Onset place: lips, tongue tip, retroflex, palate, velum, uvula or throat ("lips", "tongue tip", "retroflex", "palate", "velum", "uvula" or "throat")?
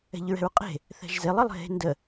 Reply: palate